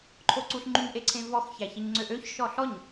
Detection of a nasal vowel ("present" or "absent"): present